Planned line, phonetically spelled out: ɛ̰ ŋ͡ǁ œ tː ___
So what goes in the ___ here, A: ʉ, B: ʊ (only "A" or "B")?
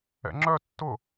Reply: B